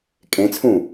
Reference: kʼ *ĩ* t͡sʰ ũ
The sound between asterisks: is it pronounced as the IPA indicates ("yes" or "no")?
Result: no